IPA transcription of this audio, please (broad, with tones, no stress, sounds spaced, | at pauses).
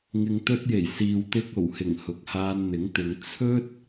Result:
ŋ ɪ˨ ŋ t̪ ɵ˧ t̚ j e˨˩ j s iː˨ w t̪ ɪ˧ k̚ o˨˩ w h ɪ˨˩ ŋ h ʊ˨ k̚ h aː˧ n n̪ ɪ˨˥ ŋ t̪ ɪ˨˧ ŋ t͡sʰ ɵ˥ t̚